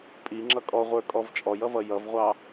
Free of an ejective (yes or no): no